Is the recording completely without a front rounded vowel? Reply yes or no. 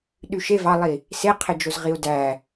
no